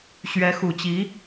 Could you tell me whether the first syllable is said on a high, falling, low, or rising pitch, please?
rising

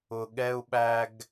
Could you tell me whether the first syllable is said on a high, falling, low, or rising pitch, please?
low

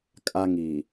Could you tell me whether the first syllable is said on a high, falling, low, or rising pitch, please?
high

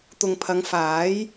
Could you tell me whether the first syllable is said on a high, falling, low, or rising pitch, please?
low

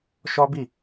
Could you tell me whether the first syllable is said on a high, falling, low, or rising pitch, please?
high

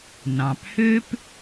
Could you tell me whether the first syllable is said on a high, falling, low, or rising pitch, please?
low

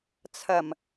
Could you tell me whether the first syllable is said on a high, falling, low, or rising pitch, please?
low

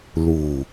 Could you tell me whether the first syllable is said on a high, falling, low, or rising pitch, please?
low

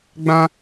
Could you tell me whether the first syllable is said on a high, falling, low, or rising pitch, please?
high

